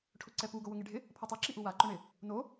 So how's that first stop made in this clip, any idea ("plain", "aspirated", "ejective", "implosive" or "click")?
aspirated